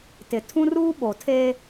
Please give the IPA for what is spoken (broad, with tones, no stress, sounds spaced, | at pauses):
t ɪ˨ tʰ ũ˦ r uː˦ ɓ o˨ tʰ e˦